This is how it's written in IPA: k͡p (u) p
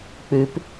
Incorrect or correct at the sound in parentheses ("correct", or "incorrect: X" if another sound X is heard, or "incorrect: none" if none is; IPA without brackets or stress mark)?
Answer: incorrect: ʉ